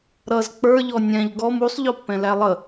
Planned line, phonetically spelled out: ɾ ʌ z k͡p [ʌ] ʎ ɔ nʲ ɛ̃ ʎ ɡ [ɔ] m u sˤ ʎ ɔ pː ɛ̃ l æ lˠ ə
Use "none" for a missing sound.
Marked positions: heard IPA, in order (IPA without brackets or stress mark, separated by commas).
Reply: ə˞, ɔ